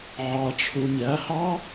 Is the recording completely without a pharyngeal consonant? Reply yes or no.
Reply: no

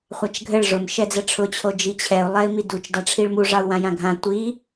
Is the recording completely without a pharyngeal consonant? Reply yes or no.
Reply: yes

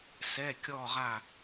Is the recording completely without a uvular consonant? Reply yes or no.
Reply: no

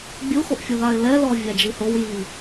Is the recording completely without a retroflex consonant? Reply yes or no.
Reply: yes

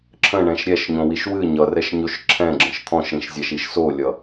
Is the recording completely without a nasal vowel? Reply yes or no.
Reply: no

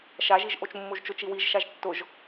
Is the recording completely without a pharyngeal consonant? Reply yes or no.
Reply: yes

